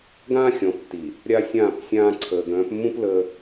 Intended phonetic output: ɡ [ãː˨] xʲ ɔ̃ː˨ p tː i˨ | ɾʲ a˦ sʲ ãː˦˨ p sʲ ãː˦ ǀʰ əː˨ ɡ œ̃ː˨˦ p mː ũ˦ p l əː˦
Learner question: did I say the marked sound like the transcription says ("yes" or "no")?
no